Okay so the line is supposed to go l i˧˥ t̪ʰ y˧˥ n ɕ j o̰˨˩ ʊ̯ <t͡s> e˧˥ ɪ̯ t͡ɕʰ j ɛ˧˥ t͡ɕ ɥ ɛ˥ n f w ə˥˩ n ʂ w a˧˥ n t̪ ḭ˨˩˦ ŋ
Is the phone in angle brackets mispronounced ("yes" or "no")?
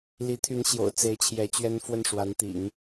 no